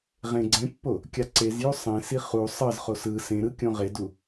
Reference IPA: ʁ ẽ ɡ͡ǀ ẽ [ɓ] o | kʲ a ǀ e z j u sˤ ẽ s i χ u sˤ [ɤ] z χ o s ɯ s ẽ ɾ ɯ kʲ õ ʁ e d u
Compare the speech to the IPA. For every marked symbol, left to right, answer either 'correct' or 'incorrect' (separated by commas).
incorrect, correct